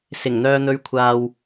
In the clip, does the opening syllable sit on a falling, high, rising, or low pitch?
low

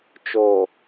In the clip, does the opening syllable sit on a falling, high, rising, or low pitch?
low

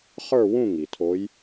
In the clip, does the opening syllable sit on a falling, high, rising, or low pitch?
falling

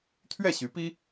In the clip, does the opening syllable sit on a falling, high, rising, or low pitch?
falling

